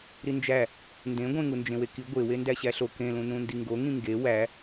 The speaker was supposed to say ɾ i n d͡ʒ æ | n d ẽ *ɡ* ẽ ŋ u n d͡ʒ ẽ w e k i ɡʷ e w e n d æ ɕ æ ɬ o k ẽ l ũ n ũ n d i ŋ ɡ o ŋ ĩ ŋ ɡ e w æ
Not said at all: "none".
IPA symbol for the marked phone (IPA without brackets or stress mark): ɡʷ